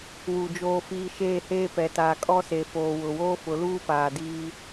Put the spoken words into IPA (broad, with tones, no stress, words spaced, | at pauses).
wu˨ d͡ʒoː˨fiː˨ ʃeː˦˨heː˦pɛ˨taː˨ kʼɔ˦se˨foː˨ wʊ˨woː˦fʊ˨˦ luː˦paː˨ diː˦